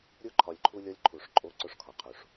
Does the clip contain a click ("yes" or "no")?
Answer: yes